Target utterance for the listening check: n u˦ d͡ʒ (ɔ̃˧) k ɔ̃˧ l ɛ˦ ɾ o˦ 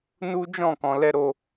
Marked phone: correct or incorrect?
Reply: incorrect